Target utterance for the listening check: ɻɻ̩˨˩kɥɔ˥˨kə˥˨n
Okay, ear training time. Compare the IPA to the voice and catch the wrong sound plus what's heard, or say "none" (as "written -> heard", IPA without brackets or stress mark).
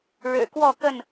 ɥ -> w